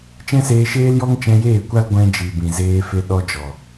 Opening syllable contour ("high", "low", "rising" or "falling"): high